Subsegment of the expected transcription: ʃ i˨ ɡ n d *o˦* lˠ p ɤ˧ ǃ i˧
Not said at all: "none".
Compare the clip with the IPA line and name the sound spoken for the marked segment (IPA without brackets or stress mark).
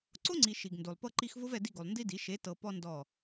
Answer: o˨